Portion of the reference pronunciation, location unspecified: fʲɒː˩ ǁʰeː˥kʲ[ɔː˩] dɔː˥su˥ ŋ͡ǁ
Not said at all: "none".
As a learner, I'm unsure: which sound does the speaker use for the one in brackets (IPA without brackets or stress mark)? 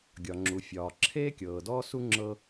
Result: ɤː˩